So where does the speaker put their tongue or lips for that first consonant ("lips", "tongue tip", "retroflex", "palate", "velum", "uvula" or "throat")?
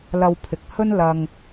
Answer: tongue tip